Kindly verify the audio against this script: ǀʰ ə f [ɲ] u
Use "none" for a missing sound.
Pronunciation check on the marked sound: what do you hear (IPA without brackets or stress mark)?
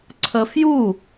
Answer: j